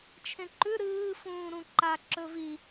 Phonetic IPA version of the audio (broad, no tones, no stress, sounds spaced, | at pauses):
t͡ʃʰ ẽ ǃ ʉ ɾ ɨː f ũː ɾ ũ ǃ a ǁ ɵ v i